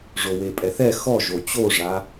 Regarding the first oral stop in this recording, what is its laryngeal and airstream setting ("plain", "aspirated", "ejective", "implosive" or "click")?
ejective